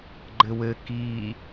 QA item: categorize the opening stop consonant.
click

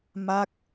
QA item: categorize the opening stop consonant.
plain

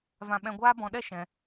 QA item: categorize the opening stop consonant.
implosive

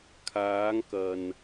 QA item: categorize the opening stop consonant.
aspirated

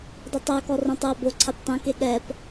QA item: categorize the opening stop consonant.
plain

